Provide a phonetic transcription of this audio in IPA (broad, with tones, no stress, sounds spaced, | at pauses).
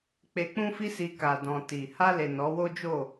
k͡p e˧ k͡p ũ˦ f i˦ s i˧ k a˨ d ɔ̃˨ t i˨ h a˧ l e˨ n ɔ˨˦ w o˦ d͡ʒ o˦˨